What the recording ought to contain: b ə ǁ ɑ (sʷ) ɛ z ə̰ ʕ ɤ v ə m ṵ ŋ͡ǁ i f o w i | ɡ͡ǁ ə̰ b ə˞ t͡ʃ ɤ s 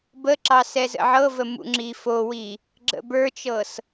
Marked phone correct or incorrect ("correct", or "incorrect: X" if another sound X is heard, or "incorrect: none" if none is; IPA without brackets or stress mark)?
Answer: incorrect: s